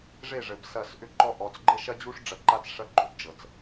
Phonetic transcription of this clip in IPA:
ʐe˦˨ʐɘ˨b sɐ˦˨s ʔʏ˦ǃɔ˦ʔɔ˨t͡s ɡ͡ǃɘ˦ʃɐ˦d͡ʑu˦ʂ ɖ͡ʐɐ˨ǃa˦t͡s ʂɐ˦ɡ͡ǃo˨bd͡ʒɤ˨t͡s

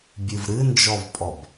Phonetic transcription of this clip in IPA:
bʲɨvɾɨnd͡ʒɔvpʼɔb

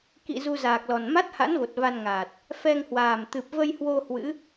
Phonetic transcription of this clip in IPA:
kḭ˧˨ zu˧zaː˨˩k̚lɔ˨˩n ma˦˥t̚ha̰˧˥nvo˨˩t̚ va˧nŋaː˨˩t̚ | fɛ˧ŋhwaː˨˩mt̪ɨ˨˩p̚ və˧jhwo˧ hwɨ̰˧˥

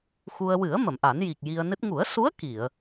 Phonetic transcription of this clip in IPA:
xu˧ə̯ wɨ˨˩˦ə̯ mə˨˩˨mʔa˨˩˦nji˨˩k̚ ji˧ə̯nɨ˦˥t̚ ŋu˨˩˦ə̯su˧˥ə̯ ki˨˩˨ə̯

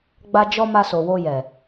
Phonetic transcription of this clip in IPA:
ɡ͡ba˧d͡ʒɔ˧ ma˧so˨wo˧ jɛ˨

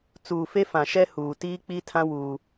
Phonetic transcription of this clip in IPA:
t͡suː˨fe˦fã˨ʃɛ˦ huː˨tiː˦k͡pi˦tʰã˦ wuː˦

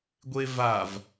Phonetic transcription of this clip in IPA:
ɡʷevav

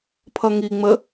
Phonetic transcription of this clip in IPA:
pʰʌŋiŋ͡mə

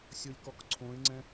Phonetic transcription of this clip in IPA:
sʲolʲkɔkǀʰõɪ̯ŋ͡ǀɛ̃

